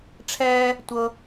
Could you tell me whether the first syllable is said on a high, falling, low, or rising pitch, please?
high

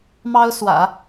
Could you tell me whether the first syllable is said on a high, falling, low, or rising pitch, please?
high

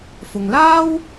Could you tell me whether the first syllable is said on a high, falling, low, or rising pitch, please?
low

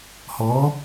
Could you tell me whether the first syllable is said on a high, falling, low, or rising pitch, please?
rising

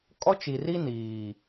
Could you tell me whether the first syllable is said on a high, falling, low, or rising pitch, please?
high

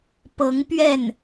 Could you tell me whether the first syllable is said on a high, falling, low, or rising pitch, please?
rising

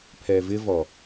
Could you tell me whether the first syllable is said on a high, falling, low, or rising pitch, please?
low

